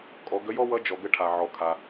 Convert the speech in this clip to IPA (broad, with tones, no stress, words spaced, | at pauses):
kʼɔ˩˧ɡə˧˥jɔ˥wʌ˧˥ d͡ʒɔ˩ɡə˧ʈʰa˩ ʕɔ˩kʰa˩